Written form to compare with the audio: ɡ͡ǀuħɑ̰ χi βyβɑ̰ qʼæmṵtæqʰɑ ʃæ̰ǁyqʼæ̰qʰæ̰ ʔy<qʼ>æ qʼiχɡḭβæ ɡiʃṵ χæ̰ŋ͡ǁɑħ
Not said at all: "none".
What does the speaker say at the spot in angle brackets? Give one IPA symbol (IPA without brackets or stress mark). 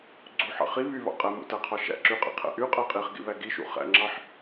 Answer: qʼ